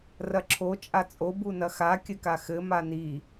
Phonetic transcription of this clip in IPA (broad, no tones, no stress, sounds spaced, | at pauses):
r ɐ ǁʰ o t͡ʃʼ a t͡sʼ o b u n ɐ x a kʲ ɘ k a x ɘ m a n i